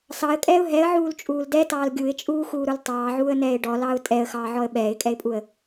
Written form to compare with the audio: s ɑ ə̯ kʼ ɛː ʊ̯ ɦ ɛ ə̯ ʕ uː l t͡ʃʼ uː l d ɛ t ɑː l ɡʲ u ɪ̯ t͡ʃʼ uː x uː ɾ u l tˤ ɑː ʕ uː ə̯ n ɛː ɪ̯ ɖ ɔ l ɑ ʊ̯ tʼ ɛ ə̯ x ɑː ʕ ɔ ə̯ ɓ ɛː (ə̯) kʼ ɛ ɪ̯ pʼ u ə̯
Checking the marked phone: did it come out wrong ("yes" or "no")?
yes